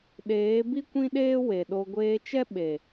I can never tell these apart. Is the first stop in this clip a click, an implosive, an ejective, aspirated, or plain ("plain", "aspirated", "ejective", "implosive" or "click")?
implosive